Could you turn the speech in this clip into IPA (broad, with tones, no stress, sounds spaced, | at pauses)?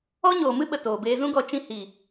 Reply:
ɔ˦ ɲ oː˨ m ɨ˦ ɓ ə˨ t oː˨ b eː˧ z ũ˦ ɡ ɔ˧ t͡ʃ ĩ˧ h iː˨